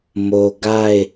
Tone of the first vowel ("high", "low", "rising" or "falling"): low